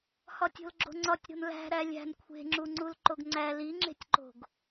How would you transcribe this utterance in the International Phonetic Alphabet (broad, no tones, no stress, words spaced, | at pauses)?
hɒtʲo̤lɡ͡ǁo̤ŋ͡ǀɒtʲ ɾo̤nlæ̤ɾæ lʲæ̤n kʷʰe̤ŋ͡ǁuŋ͡ǀul ǃoɡŋ͡ǀæ liŋ͡ǁe̤tʲǃo̤ɡ